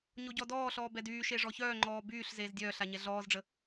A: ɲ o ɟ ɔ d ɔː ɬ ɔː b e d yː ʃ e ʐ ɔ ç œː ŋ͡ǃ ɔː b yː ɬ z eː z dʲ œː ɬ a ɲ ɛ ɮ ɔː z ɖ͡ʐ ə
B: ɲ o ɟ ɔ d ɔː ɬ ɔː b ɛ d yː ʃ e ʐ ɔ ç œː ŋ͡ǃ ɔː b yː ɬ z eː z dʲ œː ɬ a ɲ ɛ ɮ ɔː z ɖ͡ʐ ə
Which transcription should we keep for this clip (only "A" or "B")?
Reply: B